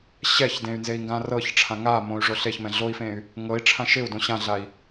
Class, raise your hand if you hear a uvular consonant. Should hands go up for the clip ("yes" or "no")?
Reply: no